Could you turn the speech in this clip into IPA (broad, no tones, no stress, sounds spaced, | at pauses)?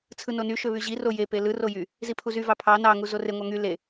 t͡sʰ ɯ n o n y ʃ ø β y ʑ i r o j e p e l ɯ r o j y | z i pʰ u z y v ɑ pʰ ɑ n ɑ ŋ u z o r e ŋʷ ɑ ŋ y l e